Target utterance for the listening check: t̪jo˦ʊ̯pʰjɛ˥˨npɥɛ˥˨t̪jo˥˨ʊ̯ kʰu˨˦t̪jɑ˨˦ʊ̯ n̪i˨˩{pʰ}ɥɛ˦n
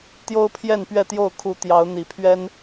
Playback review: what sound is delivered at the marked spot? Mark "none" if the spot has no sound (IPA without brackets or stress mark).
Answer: pʰ